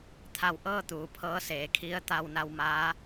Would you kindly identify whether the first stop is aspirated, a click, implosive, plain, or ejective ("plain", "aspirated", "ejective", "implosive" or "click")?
aspirated